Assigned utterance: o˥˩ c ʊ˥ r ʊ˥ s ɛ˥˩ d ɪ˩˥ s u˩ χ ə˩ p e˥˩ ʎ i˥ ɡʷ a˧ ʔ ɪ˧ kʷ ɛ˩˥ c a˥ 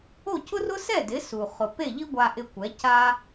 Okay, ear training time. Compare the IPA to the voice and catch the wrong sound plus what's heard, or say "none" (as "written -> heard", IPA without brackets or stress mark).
ə˩ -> ʊ˩